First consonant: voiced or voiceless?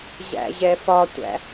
voiced